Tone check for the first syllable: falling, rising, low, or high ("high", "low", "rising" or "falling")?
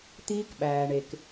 high